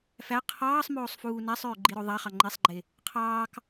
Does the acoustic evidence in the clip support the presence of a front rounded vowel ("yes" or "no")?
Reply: yes